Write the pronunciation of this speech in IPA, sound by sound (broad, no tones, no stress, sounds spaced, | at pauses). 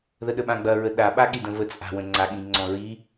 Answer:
ð ə ɗ ə ɓ ã ɡ͡b ɐ ɹ ə ɗ a ɓ a ɠ i d ə̃ v ə t͡sʼ a̤ w ə̃ ŋ͡ǀ a ɠ ĩ ŋ͡ǀ ɔ̃ ɹ i